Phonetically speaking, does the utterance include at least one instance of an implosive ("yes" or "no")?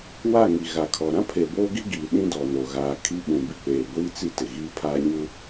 yes